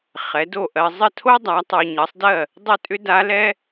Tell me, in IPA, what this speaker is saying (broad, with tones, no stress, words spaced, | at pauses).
χɛ˩˥do˥˩ ʔɜ˨ zˤə˥˩tʰo˥ dˤa˩˥ tˤo˨ɲʌ˩˥sˤdɜ˥˩ | dˤʏ˥˩tʼʏ˥da˧˥lɛ˥